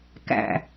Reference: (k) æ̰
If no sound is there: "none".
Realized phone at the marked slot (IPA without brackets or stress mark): k